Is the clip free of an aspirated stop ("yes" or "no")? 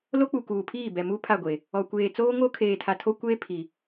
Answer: no